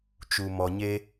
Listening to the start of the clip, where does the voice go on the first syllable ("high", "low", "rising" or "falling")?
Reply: low